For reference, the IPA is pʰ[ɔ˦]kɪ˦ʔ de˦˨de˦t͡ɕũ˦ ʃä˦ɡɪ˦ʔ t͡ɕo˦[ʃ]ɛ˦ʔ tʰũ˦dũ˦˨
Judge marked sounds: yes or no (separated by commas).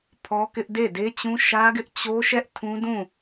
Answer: yes, yes